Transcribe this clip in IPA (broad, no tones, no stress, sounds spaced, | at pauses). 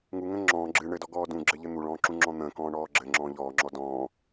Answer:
ŋ u ŋ ə̃ ŋ͡ǁ ɔ̃ː ɡ͡ǁ ɨ ɳ ɘ d ɔ ɡ ɔː d ũ ɡ͡ǁ ɘ ʎ ɘ n̪ u ɭ ɔ̃ː ǁ ũ ŋ͡ǁ ɔ̃ n̪ ə̃ː k ɔ̃ː ɳ ɔː ɡ͡ǁ ɘ ŋ͡ǁ ɔ̃ː ʎ ɔː ŋ͡ǁ ɔ d ɔ̃ː